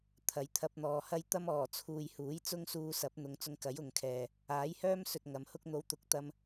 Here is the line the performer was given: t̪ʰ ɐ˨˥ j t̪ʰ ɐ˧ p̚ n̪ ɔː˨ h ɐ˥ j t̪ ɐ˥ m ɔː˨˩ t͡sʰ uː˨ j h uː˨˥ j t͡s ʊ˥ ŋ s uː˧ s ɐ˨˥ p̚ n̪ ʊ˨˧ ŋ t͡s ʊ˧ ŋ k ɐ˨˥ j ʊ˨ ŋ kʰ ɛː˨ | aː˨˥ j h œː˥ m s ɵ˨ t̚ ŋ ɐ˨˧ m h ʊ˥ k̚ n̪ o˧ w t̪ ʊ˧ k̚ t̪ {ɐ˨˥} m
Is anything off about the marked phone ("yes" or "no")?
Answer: yes